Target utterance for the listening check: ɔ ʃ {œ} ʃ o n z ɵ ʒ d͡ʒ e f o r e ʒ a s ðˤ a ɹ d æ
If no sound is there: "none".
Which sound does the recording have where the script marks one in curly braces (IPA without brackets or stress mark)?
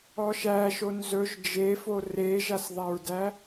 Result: æ